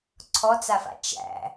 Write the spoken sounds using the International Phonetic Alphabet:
ǀʰ ɔ t͡s a f a̰ t͡ʃ æ̰

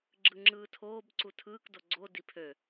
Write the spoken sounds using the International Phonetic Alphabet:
ɡ͡ǁ ɯ ŋ͡ǁ ɯː tʰ oː b ǀ u tʰ ɯː k d o ɡ͡ǀ o d i pʰ ø

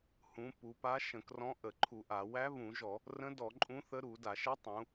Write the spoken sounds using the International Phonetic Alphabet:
h ũ˩˧ p u˩˧ p a˧˥ ʃ ə̃˧˩˧ k r ɔ̃˧˥ ʔ ə˧˩˧ ǃʰ u˧˩˧ ʔ a˧˩˧ w æ˧˥ β ũ˧˩˧ ʒ ɔ˧˩˧ | r ə̃˧˥ d ɔ˧˩˧ ǃʼ ũ˧˥ θ ə˧˥ ɾ u˧˩˧ d a˧˩˧ ʃ ə˧˥ tˤ ũ˩˧

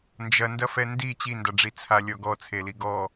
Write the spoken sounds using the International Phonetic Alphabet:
n d͡ʒ ɐ n d ɐ f ɛ n d i t͡ɕ i n d a ɖ͡ʐ i t͡sʰ a lʲ ɔ ɡ ɔ t͡sʰ e l i ɡ ɔ

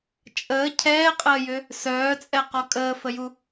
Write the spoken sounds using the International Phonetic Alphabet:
t͡ʃʼ əː cʰ ɛː qʼ əː j ʏ | s œː t͡sʼ ɛ q ɔ kʼ əː f ə j u

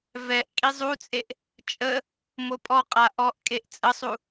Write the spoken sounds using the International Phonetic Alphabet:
v ɛ ʔ kʼ i zˤ u t͡sʼ e ʔ | t͡ʃʼ ə | m o pʼ ɔ qʼ a ʔ ɔ ʔ kʼ e ʔ t͡sʼ ə sˤ u

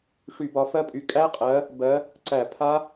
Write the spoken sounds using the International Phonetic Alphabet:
ʂ y˧˩˧ b ɒ˨˦ f ɜ˦˥ pʼ y˨˦ kʼ æ˦˥ qʼ ɜ˨˦ | b ɜ˨˦ | ǀ æ˧˩˧ pʰ a˦˥

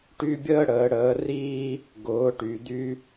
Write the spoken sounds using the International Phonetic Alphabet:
ʈ y˦ bʲ əː˦ ɽ əː˨˦ ɽ əː˨˦ r iː˦ | ɡ ʊː˨˦ ʈ y˨ d̪ y˦

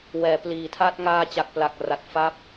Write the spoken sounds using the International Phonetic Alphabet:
w ɛː˩˦ p l iː˨˩ tʰ a˥˩ t̚ ŋ aː˧ t͡ɕ a˨˩ k̚ p l a˨˩ k̚ r a˨˩ t̚ f a˦˥ p̚

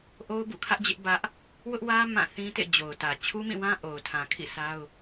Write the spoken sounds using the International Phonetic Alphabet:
ʔ o˦ ʊ̯ b ṵ˦˨ kʰ ä˦ ʔ d͡ʑ ɪ˦ ʔ b ä˦ ʔ | w ʊ˦ ʔ w ä˦ m ã˦˨ θ ĩ˦ t ḛ˦˨ d͡ʑ o˨ ʊ̯ t ä˨ t͡ɕʰ u˦ m ĩ˦˨ w ã˦ ʔ o˨ ʊ̯ tʰ ã˨ kʰ ḭ˦˨ s a˦ ʊ̯

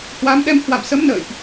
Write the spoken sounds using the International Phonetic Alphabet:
h w a˨˦ m ɗ ɛ˧ m h w a̰˧˨ m s ə˨˦ m n ə̰ː˧˨ j ʔ

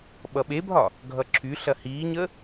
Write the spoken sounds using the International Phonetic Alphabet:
ɓ ʌ ɓ e bʱ ɒ | ɡʱ ʌ ǁʰ y ɬ ɐ h iː ɲ ə

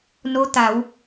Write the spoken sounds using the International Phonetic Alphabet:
n o˧˥ t̪ a˩˧ w

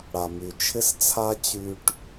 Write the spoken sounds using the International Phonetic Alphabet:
ɽ a˨ m y˨ t͡ʃʰ ɪ˦ s t͡sʰ a˦ t͡ɕ y˨ ʈ

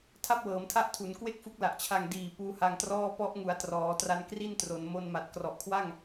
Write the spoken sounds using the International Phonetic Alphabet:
tʰ a˥˩ p̚ w ɤː˩˦ m tʰ a˦˥ ʔ tʰ u˩˦ n k w e˥˩ k̚ f u˦˥ k̚ l a˨˩ ʔ t͡ɕʰ a˨˩ ŋ d iː˨˩ p uː˦˥ h a˧ ŋ t r ɔː˥˩ p ɔ˦˥ ʔ ŋ u˩˦ a̯ t r ɔː˩˦ t r a˧ n k r i˥˩ n t r o˩˦ n m o˧ n m a˨˩ t̚ k r ɔ˨˩ ʔ kʰ w a˥˩ ŋ

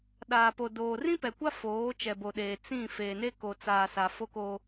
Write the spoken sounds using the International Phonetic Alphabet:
ɗ aː˨ p o˨ d oː˨ r ĩ˦ p ɛ˨ kʷ a˦ f oː˨˦ t͡ʃ ɛ˨ b o˨ ɗ eː˨ t͡s ĩ˦˨ f eː˨ n e˦ k o˨ t͡s aː˨ s a˨ f o˦ k o˦

